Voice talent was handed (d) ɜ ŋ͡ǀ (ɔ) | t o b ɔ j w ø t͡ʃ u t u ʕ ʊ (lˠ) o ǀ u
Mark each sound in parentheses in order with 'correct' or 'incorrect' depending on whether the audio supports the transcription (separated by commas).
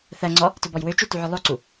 incorrect, correct, correct